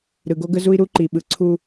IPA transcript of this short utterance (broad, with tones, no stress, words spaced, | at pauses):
ɾɯ˨ɡo˦ɡə˦zu˦i̯ ɾu˦ǃi˨ɓɯ˨ ǀʰu˦